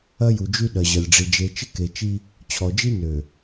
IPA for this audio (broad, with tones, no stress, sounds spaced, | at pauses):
ɐ˦ j u˨ d͡ʒ y˦ ɗ ɐ˨ ʑ ɐ˨ lʲ ɖ͡ʐ i˨ d͡ʒ e˨ t͡ʃ ɪ˦ k e˨ t͡ʃ i˦ | t͡ɕʰ ɔ˨ d͡ʒ i˦ n ø˨